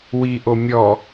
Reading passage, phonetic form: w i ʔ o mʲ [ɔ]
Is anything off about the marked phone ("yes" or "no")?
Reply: no